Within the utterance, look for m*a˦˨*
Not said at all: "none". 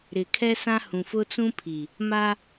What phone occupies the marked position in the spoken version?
a˦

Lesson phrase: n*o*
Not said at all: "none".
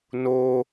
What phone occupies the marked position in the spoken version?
o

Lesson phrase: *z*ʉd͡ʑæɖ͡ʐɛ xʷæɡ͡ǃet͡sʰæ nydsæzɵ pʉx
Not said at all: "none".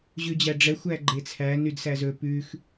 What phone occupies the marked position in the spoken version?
ʑ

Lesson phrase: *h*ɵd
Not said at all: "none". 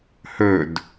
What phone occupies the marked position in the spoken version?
h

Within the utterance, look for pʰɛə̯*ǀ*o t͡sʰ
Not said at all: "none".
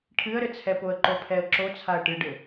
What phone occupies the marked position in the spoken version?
ǁ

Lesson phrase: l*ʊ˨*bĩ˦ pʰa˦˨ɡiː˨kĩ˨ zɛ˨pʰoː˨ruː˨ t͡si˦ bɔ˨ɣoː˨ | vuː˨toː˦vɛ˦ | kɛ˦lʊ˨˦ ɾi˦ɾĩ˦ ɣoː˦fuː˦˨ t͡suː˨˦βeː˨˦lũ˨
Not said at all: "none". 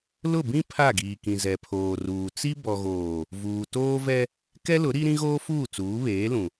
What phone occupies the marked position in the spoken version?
ʊ˦˨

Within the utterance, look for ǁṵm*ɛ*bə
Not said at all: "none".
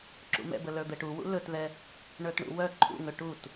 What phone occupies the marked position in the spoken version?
ɛ̰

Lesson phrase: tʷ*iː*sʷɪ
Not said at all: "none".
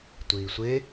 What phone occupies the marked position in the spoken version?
iː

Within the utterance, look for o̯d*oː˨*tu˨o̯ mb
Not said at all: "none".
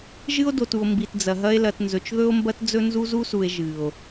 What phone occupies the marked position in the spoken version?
o˨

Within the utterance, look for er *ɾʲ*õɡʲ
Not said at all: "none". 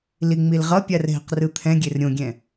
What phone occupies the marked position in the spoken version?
ɾʲ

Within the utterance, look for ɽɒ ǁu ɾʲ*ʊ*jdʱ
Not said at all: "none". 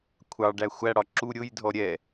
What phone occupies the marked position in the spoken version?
ʊ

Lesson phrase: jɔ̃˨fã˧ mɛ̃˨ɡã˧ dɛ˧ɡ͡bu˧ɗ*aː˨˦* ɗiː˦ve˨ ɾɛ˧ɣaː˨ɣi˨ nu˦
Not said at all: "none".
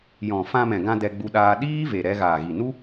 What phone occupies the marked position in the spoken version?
aː˧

